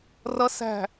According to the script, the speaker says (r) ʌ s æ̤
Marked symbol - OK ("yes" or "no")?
yes